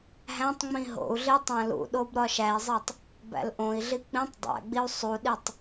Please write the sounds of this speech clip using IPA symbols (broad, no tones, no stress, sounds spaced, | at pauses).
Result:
ɦ æ̃ tˤ ŋ͡m ĩ ɦ o̰ u̯ ɮ i tˤ æ̃ l ṵ ɗ o b ɾ ɒ ʃ æ i̯ zˤ e tˤ | b æ̰ l ʔ õ i̯ ɮ i k͡p ĩ tˤ dˤ æ̰ ɡ͡b i u̯ sˤ u ɗ i tˤ